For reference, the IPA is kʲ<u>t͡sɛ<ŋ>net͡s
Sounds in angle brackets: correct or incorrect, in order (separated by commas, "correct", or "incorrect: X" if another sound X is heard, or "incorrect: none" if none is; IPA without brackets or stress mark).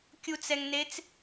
correct, correct